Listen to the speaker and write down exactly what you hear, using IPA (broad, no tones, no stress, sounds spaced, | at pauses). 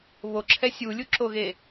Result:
β o ǁʰ ɛ sʲ u lʲ u ǁ o ɣ e